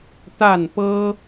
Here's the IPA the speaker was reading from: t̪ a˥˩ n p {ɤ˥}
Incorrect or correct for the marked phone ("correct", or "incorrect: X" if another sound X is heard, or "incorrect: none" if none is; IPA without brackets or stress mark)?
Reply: correct